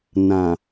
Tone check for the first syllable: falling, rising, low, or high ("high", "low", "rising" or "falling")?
low